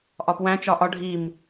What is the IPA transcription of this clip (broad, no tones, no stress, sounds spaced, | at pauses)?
ʔ ɒ p w æ̃ t͡ʃ ɒ ʔ ɒ ɖʱ i m